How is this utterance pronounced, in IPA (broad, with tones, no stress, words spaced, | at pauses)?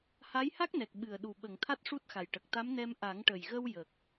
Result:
ha˧˥jha˦˥k̚nɛ˨˩k̚ ɓɨ˨˩ə̯ɗu˨˩ɓə˨˩˨ŋ t̪ʰa˦˥t̚ʂu˦˥t̚xa˨˩j ʈə˨˩k̚t̪a˧˥mnɛ˧m ʔa˨˩˦ŋʈə˨˩jɣə˧w jə˨˩k̚